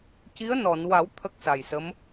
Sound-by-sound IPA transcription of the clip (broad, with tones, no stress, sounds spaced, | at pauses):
c i˧˥ ə̯ n ɔ˨˩˨ n w a˨˩˦ w t̪ʰ ə˦˥ k̚ s a˨˩ j s ə˧˥ m